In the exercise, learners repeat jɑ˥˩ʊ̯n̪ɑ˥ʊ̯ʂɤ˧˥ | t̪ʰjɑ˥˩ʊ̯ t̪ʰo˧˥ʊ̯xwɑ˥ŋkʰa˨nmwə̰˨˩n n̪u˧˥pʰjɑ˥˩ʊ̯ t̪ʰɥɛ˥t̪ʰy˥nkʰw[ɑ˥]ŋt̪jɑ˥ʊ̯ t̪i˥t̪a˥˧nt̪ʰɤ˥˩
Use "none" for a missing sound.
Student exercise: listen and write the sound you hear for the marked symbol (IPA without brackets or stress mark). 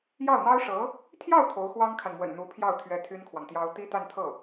ɑ˨